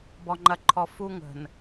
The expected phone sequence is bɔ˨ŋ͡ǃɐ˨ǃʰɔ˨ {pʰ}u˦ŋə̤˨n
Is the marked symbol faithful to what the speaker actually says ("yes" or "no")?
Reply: no